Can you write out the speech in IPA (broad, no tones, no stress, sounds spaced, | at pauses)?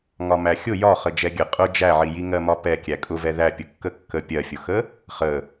ŋ ɒ m æ xʲ ʊ j ɒ χ ə d͡ʒ ɛ ɡʲ ə qʼ ʊ d͡ʒ æ ʕ i j i ŋ ɜ m ɒ p ɛ kʲ æ kʼ ʊ v ɛ ð æ pʲ ʊ kː ə kː ə pʲ ɜ fʲ ʊ x ə | χ ə